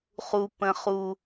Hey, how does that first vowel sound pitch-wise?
high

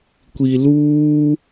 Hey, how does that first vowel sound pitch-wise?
low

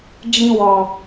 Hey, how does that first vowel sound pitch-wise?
high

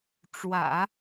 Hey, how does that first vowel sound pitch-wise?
low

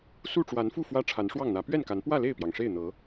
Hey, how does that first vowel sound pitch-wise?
falling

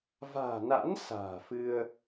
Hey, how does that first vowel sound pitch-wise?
low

